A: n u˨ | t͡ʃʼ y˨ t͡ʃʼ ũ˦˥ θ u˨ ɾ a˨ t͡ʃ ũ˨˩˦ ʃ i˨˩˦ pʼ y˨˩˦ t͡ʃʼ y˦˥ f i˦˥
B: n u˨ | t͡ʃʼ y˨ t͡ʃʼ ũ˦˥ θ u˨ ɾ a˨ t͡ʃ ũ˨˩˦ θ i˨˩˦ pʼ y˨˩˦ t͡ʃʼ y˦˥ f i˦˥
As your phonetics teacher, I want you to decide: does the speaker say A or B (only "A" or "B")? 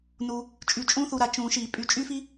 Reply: A